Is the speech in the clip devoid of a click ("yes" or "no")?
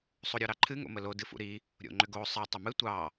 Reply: no